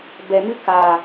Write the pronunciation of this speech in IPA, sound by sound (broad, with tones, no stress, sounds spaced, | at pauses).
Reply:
b ɛ˨ m ɨ˦ k aː˨